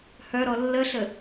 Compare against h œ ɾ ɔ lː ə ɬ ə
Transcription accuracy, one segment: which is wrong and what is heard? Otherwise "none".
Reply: none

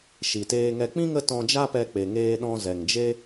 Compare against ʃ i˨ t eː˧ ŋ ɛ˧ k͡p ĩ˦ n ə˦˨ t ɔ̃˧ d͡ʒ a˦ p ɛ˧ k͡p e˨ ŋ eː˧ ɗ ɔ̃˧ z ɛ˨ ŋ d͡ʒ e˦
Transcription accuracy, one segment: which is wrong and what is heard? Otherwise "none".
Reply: n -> ŋ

